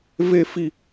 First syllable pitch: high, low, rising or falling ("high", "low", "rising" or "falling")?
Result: high